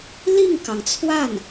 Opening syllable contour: falling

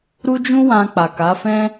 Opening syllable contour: high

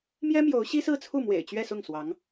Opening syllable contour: high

